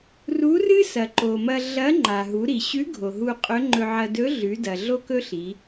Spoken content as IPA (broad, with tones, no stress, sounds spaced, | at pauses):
r u˧˥ r ɨ˥ s ɐ˩ ǃ o˩ m ɐ˧ ɮ ɐ˧˥ ŋ͡ǃ a˩ ɦ u˩˧ ɾ i˩ ɕ ʉ˧˥ ɡʱ o˩ ɦ u˧ qʼ ɵ˧˥ ŋ͡ǃ ɵ˧ ʕ ɐ˧ d ɵ˧˥ ɮ ʉ˩˧ d ɐ˩ ɮ o˥ k ɵ˥ ɬ i˩˧